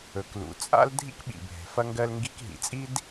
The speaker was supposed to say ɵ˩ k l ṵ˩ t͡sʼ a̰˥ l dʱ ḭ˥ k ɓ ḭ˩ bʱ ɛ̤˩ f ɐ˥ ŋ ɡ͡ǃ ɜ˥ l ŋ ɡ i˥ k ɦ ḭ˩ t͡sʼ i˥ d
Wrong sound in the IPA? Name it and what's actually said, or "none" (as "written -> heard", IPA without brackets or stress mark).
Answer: ɡ͡ǃ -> ɡ